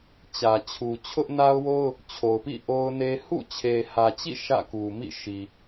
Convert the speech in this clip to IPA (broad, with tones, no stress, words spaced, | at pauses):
t͡ɕä˨t͡ɕʰu˨ t͡ɕʰʊ˦ʔna˦ʊ̯wo˦ʊ̯ | t͡ɕʰo˨ʊ̯pḭ˦˨ ʔo˦ʊ̯ne˦ hṵ˦˨t͡ɕʰe˨hä˨t͡ɕḭ˦˨ ʃä̰˦˨ku˨mḭ˦˨ ʃi˨